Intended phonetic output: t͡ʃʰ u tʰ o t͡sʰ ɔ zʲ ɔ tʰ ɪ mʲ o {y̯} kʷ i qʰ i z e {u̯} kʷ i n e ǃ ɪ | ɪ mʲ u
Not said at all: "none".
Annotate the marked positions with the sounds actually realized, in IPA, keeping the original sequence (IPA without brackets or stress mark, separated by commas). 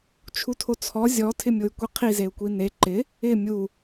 y̯, u̯